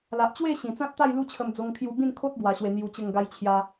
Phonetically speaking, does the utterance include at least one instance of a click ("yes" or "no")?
no